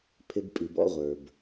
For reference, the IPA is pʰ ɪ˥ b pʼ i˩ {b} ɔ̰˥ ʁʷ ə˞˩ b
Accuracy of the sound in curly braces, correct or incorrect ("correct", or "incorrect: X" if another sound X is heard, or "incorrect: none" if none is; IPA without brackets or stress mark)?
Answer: correct